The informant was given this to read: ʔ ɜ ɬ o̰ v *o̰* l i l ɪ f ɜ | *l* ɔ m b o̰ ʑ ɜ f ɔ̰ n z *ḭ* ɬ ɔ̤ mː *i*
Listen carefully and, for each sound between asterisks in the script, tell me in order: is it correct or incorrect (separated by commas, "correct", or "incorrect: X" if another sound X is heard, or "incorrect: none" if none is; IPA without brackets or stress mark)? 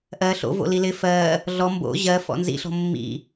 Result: correct, incorrect: ɮ, correct, incorrect: ḭ